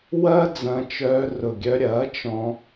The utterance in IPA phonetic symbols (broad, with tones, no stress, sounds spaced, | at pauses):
w ɐː˦ d͡z ɐ̃˧ t͡ʃ œː˧ r ʊ˨ ɡʲ œ˧ ɾʲ ɐː˨˦ t͡ʃ ɔ̃˧